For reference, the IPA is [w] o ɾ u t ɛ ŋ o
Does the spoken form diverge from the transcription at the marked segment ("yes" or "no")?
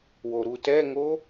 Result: no